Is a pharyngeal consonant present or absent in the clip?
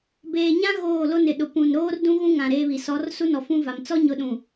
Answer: absent